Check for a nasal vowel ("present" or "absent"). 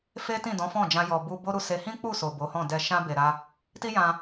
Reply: present